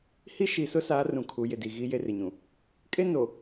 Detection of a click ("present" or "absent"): absent